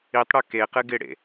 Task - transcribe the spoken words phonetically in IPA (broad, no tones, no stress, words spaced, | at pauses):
itˤɽu keqɨ ɡɪɽḛ